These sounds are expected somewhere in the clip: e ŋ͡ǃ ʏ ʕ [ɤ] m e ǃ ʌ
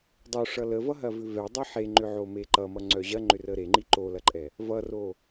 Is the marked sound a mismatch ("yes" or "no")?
yes